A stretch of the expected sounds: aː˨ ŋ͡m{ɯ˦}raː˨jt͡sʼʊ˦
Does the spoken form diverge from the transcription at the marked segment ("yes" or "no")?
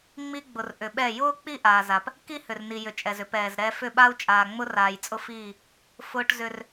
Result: yes